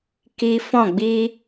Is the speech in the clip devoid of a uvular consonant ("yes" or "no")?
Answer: yes